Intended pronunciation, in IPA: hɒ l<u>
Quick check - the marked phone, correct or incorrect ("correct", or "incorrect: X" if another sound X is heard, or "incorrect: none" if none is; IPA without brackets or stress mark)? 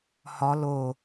incorrect: o